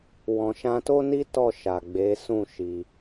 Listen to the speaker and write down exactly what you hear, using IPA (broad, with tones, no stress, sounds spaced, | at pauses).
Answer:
w ɔ̃˨ ʃ ã˧ t o˦ n i˦ t ɔ˦˨ ʃ a˨ ɡ͡b e˨˦ s ũ˦˨ ʃ i˧